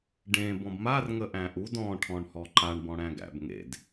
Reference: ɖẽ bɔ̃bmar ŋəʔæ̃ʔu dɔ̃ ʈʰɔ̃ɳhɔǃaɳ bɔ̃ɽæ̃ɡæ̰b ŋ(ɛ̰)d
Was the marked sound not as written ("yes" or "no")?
yes